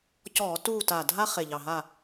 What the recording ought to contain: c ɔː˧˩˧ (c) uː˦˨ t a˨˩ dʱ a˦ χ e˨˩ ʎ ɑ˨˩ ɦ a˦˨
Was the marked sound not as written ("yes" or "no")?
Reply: yes